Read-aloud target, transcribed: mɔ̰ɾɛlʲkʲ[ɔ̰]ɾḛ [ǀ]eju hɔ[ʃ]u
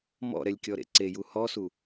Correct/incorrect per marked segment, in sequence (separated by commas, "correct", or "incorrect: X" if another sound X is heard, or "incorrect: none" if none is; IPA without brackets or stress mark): incorrect: ɔ, correct, incorrect: s